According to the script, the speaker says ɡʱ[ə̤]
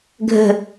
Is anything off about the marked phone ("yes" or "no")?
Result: no